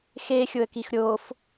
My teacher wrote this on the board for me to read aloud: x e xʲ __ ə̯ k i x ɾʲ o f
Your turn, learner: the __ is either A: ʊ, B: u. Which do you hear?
A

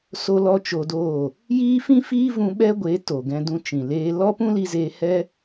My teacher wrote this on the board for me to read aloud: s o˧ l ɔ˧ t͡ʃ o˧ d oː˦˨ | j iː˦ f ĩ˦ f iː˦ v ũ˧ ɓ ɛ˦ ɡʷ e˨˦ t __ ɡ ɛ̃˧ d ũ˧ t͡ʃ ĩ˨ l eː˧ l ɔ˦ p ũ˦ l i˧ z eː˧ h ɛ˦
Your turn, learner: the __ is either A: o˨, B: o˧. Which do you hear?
A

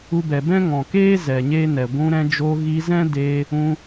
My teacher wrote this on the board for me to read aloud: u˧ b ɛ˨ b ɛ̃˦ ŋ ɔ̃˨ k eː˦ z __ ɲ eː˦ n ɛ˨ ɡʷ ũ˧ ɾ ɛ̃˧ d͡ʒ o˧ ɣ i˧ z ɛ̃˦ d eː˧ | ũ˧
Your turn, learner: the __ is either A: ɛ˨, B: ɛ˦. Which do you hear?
A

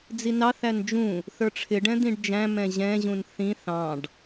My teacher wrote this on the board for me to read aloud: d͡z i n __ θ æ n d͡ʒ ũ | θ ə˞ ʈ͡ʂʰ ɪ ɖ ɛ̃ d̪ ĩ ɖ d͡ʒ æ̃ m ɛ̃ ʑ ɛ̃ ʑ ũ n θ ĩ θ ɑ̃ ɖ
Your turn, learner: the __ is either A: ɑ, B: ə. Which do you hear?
A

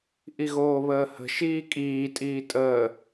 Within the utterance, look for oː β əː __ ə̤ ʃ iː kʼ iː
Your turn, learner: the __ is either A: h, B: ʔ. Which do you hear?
A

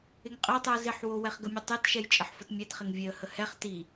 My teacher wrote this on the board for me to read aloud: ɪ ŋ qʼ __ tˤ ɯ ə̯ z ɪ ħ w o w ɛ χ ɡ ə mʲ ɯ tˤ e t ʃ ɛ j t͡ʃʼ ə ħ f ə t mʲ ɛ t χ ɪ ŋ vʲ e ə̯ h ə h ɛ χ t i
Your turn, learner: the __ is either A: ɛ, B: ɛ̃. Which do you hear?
A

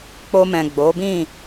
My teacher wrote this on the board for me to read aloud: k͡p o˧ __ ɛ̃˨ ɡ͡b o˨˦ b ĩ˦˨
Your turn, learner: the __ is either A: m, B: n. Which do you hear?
A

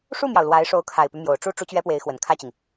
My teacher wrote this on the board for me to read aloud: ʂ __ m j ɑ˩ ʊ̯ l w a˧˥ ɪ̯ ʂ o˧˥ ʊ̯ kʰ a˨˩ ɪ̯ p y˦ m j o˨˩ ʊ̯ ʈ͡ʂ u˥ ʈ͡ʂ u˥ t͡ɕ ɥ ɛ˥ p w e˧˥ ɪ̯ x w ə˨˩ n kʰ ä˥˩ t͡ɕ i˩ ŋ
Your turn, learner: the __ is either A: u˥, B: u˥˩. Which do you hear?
B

